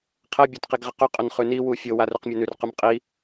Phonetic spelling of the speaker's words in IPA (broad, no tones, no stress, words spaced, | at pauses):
qʰɛ bʲotqiɡʁɪqʏ qʼʏnχʉni wufʲo warʉqmʲɛnʉr qʉmqʼi